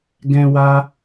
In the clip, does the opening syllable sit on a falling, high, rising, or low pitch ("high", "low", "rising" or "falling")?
high